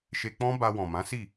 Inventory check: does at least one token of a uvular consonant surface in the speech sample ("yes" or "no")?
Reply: no